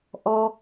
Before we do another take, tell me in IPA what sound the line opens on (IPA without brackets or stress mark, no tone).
ʔ